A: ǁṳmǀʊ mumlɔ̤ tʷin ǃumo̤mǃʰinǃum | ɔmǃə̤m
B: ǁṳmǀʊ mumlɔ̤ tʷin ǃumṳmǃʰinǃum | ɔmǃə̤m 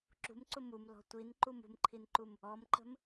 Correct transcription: B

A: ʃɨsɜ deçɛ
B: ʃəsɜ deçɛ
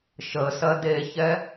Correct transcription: B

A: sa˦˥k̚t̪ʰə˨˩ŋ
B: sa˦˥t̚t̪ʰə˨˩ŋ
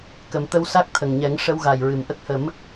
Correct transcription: A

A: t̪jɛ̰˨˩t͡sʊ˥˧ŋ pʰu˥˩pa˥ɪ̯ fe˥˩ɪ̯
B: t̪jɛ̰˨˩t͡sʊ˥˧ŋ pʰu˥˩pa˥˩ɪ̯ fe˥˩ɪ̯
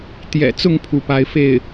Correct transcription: A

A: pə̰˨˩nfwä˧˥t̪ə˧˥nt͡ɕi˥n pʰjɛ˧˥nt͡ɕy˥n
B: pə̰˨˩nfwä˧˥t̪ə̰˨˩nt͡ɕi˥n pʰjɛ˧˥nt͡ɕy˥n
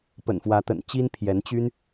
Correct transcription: B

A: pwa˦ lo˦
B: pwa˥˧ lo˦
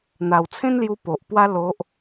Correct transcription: A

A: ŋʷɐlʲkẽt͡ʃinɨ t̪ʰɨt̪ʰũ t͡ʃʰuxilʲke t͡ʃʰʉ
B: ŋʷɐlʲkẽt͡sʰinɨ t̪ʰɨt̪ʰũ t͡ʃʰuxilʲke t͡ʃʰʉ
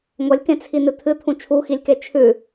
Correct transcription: B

